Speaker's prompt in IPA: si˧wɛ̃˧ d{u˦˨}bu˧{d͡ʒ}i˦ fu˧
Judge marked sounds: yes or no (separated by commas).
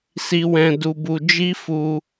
no, yes